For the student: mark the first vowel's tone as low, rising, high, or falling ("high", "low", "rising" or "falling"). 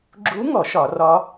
rising